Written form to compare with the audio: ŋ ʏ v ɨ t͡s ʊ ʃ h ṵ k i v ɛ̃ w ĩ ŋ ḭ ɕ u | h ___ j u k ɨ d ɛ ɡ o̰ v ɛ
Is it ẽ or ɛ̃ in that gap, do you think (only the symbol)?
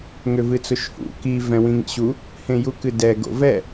ẽ